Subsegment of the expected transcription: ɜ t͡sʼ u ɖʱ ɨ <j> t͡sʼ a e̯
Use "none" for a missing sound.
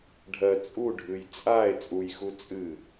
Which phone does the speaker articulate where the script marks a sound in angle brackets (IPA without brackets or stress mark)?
j